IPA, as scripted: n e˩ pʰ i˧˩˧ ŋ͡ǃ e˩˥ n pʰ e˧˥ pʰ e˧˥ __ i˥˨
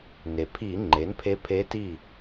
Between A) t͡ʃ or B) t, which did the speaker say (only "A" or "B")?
B